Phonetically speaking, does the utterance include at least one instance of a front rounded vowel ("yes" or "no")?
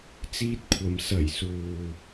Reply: no